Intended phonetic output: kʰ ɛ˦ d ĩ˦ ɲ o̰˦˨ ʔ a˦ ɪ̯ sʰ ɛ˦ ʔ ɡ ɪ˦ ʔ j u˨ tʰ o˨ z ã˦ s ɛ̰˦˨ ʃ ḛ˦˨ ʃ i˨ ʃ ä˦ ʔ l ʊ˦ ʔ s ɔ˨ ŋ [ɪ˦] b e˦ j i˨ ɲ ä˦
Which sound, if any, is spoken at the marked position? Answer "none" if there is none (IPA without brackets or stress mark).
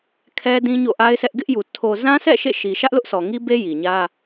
i˦